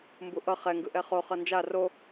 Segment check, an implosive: absent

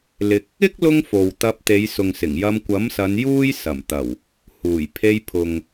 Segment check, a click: absent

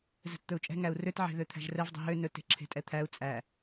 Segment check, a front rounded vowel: present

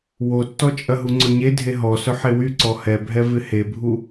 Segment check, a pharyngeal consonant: present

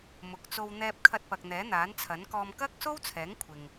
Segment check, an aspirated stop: present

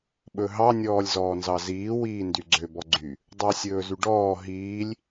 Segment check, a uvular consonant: absent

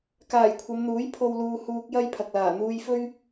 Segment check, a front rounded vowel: absent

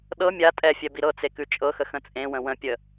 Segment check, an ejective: present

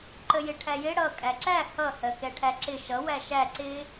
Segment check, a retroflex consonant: present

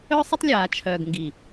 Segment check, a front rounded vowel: present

